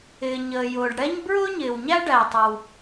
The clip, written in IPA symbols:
ɪː˩ ɲəː˩jʊː˩ɖɽɛ˥ɲ bɹʊː˥ɲɪː˩wɲæ˥ ɖæ˩tˤʌ˩w

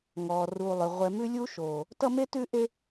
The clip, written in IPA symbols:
ŋɔː˨ruː˨ lˠʏ˨ ʁʷɛ˨mʉ˦lʲu˦ʃoː˨ | tʌ˦ me˦tʉ˦ʔe˦

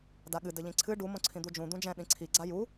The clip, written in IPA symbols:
daɠɨ dɘʎĩǀʰɨ ɖu mõǀʰĩd̪ud͡ʒũ d̪ũd͡ʒɛ̃ ɗĩǀʰi ɡ͡ǀaju

